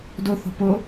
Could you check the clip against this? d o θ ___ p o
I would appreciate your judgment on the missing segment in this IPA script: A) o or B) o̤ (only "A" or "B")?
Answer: B